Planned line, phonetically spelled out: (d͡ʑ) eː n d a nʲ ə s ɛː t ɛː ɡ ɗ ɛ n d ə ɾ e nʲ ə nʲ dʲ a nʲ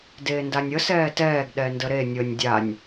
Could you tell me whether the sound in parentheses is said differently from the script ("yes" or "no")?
yes